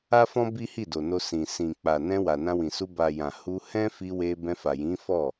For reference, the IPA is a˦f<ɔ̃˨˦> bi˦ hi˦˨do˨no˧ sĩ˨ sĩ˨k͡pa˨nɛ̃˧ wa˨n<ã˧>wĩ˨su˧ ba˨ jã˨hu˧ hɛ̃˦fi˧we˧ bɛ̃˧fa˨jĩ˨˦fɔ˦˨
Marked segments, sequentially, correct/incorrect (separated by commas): incorrect, correct